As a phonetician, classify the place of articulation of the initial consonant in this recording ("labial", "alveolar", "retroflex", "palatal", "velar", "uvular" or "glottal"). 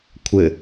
velar